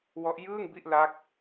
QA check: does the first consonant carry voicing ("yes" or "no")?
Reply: yes